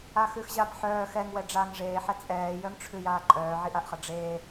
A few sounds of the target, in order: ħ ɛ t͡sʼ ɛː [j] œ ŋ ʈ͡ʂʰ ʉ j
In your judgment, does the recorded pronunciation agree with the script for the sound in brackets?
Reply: yes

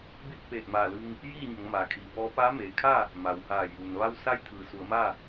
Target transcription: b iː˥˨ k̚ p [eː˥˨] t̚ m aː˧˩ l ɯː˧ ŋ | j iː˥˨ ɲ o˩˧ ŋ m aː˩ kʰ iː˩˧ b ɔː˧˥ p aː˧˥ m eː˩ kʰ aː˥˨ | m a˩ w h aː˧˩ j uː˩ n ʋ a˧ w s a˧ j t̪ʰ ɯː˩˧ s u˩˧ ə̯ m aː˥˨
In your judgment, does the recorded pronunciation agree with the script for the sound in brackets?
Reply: no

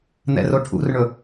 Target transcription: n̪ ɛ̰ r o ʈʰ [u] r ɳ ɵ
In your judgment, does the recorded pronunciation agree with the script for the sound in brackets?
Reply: no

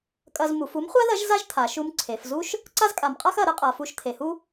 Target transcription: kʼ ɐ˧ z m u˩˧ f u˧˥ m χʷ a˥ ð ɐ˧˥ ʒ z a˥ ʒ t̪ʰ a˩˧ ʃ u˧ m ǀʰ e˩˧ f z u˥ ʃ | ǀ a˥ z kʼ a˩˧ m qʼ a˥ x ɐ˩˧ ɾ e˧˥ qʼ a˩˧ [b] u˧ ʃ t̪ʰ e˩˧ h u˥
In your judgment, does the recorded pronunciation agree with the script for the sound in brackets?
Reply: no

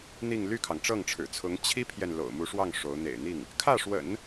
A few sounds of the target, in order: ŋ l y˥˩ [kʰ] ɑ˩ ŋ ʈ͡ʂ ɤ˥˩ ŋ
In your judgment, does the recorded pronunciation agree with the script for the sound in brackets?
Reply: yes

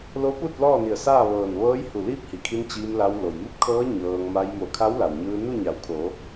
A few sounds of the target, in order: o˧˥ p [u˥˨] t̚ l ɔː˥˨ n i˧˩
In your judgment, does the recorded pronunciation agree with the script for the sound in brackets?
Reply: yes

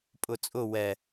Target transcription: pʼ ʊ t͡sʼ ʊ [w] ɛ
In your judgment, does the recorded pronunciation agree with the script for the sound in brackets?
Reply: yes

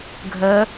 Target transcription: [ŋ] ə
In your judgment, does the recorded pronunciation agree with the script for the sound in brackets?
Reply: no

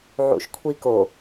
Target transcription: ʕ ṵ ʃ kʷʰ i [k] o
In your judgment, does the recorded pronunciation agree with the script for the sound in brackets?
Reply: yes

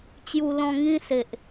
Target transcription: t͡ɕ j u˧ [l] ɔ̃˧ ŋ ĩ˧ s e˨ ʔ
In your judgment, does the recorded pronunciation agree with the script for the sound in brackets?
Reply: yes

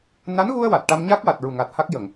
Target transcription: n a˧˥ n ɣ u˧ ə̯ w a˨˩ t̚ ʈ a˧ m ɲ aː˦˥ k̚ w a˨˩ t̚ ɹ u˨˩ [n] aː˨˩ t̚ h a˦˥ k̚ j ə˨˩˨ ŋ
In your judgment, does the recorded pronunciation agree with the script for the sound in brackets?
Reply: no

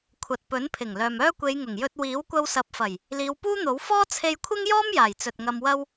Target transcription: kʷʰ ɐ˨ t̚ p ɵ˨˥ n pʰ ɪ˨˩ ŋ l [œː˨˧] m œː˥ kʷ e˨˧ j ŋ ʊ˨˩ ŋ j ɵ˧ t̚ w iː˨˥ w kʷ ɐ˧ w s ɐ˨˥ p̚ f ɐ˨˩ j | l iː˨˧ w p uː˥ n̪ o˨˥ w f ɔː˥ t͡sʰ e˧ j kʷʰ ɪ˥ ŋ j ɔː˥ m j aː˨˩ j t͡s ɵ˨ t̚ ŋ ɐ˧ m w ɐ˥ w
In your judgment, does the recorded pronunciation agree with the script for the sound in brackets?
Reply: no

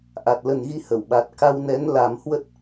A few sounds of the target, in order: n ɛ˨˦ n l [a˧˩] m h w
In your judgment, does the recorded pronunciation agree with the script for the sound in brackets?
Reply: no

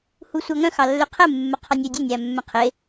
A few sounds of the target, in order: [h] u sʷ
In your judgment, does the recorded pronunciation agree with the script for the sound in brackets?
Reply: yes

